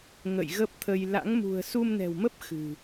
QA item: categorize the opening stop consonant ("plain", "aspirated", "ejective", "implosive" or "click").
plain